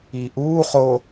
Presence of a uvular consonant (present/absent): present